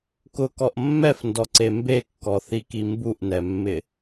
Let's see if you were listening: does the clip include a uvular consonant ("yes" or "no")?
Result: no